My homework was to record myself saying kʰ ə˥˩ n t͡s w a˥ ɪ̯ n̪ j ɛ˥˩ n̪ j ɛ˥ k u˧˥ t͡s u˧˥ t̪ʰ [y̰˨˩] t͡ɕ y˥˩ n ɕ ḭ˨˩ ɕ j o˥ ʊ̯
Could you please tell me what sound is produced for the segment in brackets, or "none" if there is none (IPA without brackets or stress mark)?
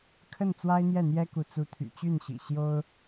y̰˨˩